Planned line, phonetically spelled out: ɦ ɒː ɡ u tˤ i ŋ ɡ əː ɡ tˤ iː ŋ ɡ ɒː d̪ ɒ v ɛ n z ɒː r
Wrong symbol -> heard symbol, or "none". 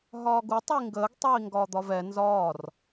none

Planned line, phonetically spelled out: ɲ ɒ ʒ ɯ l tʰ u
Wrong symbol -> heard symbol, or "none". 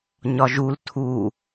ɯ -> u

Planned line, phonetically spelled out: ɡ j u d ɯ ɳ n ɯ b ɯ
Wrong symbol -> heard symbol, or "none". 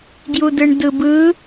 n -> d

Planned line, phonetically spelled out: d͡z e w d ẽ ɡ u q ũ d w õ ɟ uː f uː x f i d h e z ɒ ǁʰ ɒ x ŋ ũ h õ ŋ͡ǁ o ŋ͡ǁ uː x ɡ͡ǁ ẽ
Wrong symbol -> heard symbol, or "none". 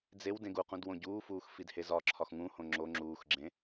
none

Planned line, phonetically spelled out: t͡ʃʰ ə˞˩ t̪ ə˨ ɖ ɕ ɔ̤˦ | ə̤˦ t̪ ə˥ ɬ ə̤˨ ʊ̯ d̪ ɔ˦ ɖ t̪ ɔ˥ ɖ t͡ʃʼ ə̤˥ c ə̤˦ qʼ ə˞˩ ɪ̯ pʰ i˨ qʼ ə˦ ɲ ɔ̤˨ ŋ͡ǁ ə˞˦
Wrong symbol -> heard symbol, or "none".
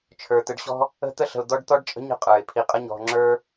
c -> ɲ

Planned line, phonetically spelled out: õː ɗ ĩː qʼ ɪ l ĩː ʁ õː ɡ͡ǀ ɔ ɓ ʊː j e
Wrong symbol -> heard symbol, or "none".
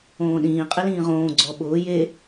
none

